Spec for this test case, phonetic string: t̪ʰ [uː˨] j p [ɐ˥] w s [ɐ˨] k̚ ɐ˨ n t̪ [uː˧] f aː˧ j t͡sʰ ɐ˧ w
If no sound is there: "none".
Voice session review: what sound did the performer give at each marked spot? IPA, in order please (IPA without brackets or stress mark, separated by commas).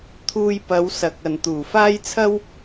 uː˧, ɐ˨˧, ɐ˨, uː˨˩